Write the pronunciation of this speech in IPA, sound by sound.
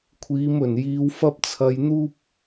kʷʰiː˨˧mɵ˨˩njiː˨˧w fɐ˥p̚t͡sʰɐ˧jn̪uː˥p̚

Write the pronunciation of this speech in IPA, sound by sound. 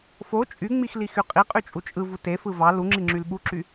fo t͡ʃʼyŋ͡mix lixyqʼiqʼy t͡ʃʼut͡ʃʼɯvu tefɯ vɑ luŋ͡ǁi ŋ͡ǁylɓuǁy

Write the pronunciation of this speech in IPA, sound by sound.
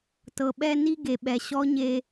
tɤ˩ɓɛ˧ ni˥ ɡe˩ɓɛ˩ ɕɔ˧˥ɲe˧

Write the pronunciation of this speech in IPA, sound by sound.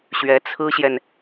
ɕɥɛ˧˥t͡sʰɹ̩˥ɕjɛ˨n

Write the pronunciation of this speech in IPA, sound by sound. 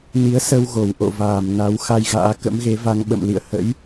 ni˨˦ə̯sə˧w ɣo˧˩wʔo̰˧˨ vaː˧˩m na˨˦wxa˧jɣa̰ː˧˥ kə̰˧˥mɣe˨˦va˧ŋɓə̰˧˨m lḭ˧˨ə̯hə̰˧˥j

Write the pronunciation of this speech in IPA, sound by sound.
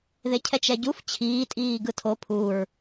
ðecʰɛt͡ʃɛɟuf t͡ɕʰiː tʼiːɡɯtʰo pʰuɹ

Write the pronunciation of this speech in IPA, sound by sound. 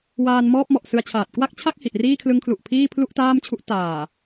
waː˧nmɔː˥˩p̚ mɔ˨˩ʔ sɯ˧a̯t͡ɕʰaː˨˩t̚ kwa˥˩k̚t͡ɕʰa˥˩k̚hi˨˩ʔ riː˥˩kʰlɯ˦˥ŋkʰlu˨˩ʔpʰiː˥˩ pʰlu˥˩ʔtaː˥˩mt͡ɕʰu˦˥ʔ taː˨˩

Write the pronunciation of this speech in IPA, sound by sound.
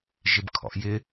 ʒɪbkʰɔ̰ʔjɪ

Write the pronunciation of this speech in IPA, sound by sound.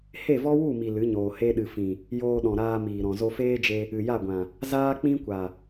he˦˨vɔ˦wu˦˨mi˨ lɨ˨˦ɲoː˨ he˧ɗɨ˨fĩ˨ | joː˧ɗɔ̃˨ɾaː˧miː˨ ɾɔ̃˨zo˧feː˦d͡ʒe˧ | ɨ˨ja˦˨ɡʷã˨ | zaː˦k͡pĩ˦kʷa˨

